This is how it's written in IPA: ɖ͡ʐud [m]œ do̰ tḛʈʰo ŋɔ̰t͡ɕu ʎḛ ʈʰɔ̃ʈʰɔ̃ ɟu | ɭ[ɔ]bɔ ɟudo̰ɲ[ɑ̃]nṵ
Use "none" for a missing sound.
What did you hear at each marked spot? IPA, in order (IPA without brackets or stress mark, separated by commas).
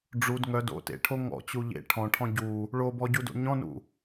ŋ, o, ɔ̃